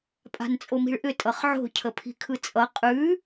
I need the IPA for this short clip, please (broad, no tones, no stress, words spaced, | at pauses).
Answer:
pʼa̤nt͡sʼomi̤ɭʔʏ tʼʌχʕo̤ cʰəpʰi̤kʰɯt͡sʼʌ qʼʉ